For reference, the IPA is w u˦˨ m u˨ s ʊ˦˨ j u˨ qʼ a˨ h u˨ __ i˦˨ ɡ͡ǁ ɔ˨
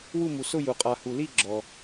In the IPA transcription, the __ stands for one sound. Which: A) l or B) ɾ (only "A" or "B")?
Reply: A